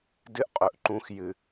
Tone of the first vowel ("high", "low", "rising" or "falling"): high